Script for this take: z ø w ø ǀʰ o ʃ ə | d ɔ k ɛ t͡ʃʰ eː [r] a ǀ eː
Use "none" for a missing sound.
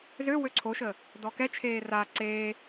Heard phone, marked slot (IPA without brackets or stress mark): r